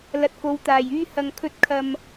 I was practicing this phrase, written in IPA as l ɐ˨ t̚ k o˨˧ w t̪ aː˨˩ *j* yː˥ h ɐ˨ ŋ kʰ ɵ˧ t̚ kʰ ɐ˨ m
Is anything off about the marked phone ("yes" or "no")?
no